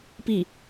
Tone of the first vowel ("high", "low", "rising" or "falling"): falling